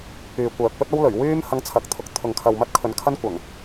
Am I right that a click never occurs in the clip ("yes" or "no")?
yes